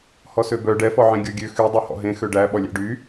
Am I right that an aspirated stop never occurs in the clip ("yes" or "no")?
yes